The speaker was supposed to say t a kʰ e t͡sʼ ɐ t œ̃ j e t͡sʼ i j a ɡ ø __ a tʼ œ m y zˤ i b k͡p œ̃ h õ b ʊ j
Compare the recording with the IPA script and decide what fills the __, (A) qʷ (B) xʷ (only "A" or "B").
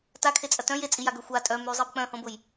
B